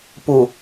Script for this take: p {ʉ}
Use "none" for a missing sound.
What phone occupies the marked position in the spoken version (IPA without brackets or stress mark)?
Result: u